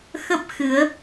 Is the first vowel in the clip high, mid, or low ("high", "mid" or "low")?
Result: mid